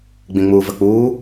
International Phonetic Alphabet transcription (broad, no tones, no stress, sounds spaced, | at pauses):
ɡ͡b ĩ ŋ͡m uː v ə k͡p uː